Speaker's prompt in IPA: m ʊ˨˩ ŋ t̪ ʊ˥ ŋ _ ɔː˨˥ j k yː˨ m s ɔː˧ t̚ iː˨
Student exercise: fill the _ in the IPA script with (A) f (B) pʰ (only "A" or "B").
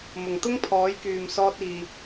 B